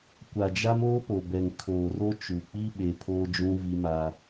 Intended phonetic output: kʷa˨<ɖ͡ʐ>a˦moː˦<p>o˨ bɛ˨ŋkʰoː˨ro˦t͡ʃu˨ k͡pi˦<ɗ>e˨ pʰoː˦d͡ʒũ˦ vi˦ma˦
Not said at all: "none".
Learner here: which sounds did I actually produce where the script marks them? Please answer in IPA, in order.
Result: d͡ʒ, p, ɓ

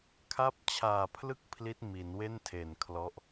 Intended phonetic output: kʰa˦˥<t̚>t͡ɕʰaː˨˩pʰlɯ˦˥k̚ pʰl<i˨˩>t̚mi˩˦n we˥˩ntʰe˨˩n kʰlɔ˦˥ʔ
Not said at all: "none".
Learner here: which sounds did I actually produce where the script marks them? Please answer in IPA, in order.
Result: p̚, i˦˥

